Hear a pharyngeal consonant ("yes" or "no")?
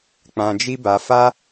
no